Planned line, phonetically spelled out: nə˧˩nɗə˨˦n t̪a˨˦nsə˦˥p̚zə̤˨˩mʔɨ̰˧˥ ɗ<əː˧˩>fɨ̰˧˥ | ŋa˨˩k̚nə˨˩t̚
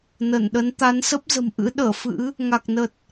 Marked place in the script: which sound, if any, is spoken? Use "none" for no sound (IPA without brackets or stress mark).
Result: əː˧˩